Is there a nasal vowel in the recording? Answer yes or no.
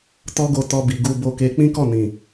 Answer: yes